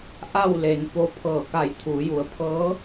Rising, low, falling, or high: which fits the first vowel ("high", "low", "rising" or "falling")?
falling